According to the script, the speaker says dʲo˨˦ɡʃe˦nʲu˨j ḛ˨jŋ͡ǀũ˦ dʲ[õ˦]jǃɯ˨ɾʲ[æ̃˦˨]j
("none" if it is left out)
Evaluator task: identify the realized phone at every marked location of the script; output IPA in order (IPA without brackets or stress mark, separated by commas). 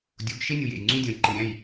õ˨, æ̃˦˨